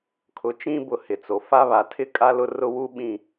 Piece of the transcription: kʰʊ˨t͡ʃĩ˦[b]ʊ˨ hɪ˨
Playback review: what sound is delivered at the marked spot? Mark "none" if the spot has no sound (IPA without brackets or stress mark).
b